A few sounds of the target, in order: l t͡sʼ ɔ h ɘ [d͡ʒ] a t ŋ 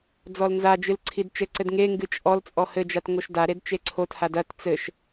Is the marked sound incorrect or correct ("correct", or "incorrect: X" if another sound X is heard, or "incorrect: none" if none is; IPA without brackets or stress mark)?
correct